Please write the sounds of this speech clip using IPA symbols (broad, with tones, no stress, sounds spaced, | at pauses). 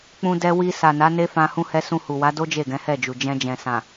k͡p ũ˧ d ɛ˧ w i˧ s a˨ n a˨˦ n e˦ f ã˧ h ũ˧ h ɛ˧ s ũ˧ h u˨ w a˨˦ d o˦ d͡ʒ e˦˨ ɡ ɛ̃˨˦ h ɛ˦˨ d͡ʒ u˨ d͡ʒ ɛ̃˧ d͡ʒ ɛ̃˨ s ã˨